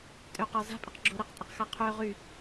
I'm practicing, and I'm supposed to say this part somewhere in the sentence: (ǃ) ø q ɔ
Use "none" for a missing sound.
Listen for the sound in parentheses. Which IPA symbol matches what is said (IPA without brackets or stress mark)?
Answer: tʼ